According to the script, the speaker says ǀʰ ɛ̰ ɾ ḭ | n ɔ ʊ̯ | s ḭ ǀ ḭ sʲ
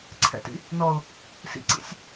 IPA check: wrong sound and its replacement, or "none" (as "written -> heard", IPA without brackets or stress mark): ɾ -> t